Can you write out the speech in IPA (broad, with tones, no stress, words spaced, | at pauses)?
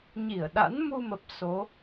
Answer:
ɲi˧˩ə̯ɗa̰˧˥n mu˧mə˨˩p̚ so˨˦